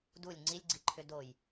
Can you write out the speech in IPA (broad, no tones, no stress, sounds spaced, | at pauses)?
d u lʲ ŋ͡ǀ i lʲ ɡ͡ǀ i ǃʰ ʏ d o j